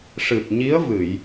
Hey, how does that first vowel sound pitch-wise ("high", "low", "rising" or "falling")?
low